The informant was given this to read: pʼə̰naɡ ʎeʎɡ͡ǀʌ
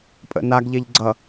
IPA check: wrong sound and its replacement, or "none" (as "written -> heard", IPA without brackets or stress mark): none